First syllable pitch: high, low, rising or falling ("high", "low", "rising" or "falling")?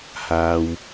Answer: low